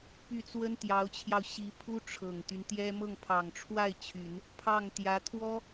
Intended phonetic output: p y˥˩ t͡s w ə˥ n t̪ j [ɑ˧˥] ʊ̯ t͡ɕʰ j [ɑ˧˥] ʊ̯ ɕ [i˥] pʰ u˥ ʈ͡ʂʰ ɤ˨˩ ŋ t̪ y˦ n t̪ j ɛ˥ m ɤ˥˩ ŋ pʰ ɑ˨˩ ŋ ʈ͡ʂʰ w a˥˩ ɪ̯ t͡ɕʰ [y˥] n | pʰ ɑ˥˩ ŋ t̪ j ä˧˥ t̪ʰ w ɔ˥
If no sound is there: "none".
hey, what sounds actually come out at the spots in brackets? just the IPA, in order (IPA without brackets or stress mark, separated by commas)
ɑ˧˥, ɑ˧, i˧˥, y˨˩˦